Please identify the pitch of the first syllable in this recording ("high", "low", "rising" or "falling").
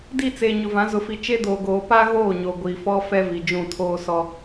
falling